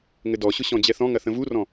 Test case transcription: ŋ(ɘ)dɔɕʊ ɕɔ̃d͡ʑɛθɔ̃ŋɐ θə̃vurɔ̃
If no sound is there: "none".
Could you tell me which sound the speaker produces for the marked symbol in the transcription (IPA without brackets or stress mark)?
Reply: ɘ